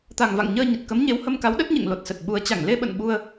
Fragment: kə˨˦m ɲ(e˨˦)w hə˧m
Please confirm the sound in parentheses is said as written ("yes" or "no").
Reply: yes